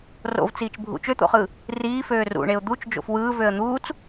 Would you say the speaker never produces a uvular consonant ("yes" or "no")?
no